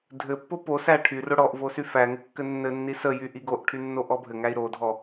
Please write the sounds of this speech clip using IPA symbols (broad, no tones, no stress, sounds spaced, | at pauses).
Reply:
dʱ ɘ pː o p o s æ ʈʰ y r o ɽ ɔ ʔ v o s y f æ ŋ ɘ kː ɘ nː ɘ nː i s ə j y ʔ i ɡ o ʔ ʈʰ y nː o ʔ ɔ bʱ ɘ ŋ æ i̯ ɾ o dʱ ɔ